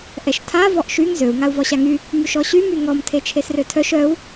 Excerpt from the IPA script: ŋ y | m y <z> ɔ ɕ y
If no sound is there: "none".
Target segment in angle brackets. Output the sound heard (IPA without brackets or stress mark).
ʃ